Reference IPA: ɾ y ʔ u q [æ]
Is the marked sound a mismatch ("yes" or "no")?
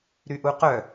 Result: yes